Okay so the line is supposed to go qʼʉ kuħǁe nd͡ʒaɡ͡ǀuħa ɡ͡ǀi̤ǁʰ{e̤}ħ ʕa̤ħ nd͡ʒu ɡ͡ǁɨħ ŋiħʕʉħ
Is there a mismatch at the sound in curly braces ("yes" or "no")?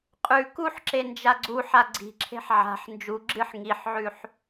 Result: no